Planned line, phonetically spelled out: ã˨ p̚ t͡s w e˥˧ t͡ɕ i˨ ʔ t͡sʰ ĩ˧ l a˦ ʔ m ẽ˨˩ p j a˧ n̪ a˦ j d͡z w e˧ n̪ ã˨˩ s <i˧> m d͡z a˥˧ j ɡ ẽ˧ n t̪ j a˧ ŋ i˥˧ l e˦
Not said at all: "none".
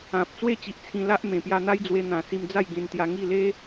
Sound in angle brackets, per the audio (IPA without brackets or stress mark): i˧